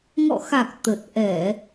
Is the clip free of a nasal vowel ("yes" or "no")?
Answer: yes